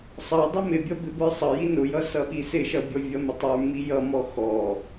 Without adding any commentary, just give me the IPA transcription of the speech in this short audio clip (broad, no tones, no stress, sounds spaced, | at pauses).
sˤ ʌ dˤ ɪ m ɪ bʲ ʌ b ɪ b ə˞ sˤ ʌ j i n ʊ j ʌ s ʌ ɓ i s ɪ ʃ ʌ bʲ ɔ vʲ ʌ m ɪ tˤ ə˞ m i j ʌ m ɔ x ɔ